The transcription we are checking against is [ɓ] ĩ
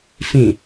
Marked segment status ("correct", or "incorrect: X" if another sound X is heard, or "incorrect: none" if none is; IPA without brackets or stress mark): incorrect: f